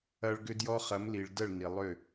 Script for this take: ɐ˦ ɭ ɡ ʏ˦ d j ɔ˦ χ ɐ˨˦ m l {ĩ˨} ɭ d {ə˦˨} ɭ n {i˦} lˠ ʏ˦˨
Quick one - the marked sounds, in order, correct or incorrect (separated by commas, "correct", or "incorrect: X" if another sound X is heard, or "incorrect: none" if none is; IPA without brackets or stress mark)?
incorrect: i˨, correct, incorrect: i˨